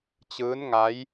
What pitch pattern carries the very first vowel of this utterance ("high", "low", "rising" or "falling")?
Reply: rising